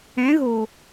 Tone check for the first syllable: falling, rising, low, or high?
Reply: rising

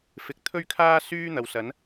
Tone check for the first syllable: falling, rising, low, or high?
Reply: rising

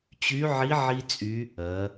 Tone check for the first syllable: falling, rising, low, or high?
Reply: rising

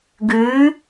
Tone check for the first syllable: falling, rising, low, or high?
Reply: rising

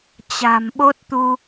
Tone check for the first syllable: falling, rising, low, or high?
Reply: low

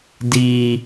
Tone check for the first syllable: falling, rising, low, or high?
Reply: low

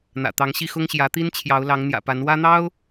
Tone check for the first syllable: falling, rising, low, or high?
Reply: low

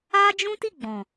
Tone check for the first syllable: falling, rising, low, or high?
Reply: high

